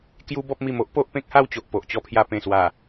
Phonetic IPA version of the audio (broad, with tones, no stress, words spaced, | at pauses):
kju˦bɔ˦p̚mi˧m o˦ʔ po˦ʔpẽ˦k̚ha˥˧wt͡ɕo˨ʔ po˨ʔt͡ɕɔ˧pʰja˧ pẽ˨˩swa˨˩